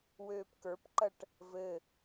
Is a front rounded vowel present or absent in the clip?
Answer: present